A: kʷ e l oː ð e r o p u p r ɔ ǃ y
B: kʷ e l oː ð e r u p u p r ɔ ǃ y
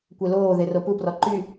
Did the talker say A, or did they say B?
A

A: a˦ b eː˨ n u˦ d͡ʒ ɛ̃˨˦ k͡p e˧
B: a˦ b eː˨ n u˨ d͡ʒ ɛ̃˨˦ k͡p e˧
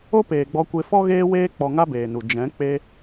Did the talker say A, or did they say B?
B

